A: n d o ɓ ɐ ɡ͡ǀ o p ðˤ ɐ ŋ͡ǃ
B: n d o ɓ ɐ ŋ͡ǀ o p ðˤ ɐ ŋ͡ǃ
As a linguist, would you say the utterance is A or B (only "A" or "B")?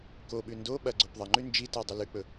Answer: A